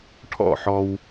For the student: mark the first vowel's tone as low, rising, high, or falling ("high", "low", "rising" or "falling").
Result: falling